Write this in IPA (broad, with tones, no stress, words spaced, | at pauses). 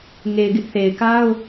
ŋe˨ɪ̯ɡɪ˦ʔθe˨ɪ̯ka˦ʊ̯